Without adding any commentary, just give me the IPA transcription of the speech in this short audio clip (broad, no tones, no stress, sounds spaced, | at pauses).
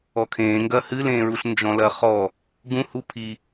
ɔ kʰ ẽː ŋ ɡ ɐ h ɨ l ẽː ɹ u ɬ n d͡ʒ ɔ̃ l ɐ χ ɔ | ɡ ũ h u pʰ i